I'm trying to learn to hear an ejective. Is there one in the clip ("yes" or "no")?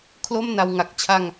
no